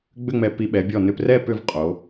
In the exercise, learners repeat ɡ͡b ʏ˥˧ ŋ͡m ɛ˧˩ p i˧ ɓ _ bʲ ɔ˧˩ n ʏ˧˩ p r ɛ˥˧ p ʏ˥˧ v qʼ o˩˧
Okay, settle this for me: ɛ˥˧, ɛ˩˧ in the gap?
ɛ˩˧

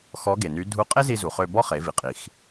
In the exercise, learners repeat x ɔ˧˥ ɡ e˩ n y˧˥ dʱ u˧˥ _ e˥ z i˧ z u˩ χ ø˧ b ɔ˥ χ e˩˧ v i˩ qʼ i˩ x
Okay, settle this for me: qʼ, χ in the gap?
qʼ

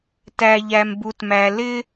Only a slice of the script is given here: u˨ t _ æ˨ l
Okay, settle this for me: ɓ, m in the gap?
m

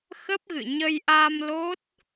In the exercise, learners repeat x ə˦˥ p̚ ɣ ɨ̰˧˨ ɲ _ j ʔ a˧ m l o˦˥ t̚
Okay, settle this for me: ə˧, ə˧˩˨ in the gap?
ə˧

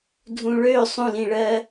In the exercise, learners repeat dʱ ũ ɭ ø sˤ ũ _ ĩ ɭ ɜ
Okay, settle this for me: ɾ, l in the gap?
l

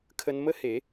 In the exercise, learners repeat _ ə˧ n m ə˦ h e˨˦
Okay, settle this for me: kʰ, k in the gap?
kʰ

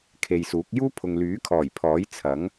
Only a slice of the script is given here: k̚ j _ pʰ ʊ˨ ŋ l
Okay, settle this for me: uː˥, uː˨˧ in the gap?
uː˥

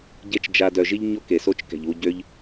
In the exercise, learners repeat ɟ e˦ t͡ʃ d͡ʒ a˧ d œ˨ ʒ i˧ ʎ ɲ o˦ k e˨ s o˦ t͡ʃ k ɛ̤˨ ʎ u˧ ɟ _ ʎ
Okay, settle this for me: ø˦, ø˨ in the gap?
ø˦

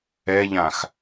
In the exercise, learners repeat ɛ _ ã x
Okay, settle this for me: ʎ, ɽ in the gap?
ʎ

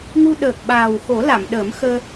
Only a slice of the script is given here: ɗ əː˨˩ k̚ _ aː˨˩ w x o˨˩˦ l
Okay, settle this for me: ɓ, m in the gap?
ɓ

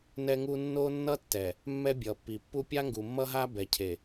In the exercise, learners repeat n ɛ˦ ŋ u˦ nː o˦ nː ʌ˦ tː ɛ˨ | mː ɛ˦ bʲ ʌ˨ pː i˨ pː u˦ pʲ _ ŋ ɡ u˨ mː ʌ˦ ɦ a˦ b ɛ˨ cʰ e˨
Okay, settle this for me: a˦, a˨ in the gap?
a˦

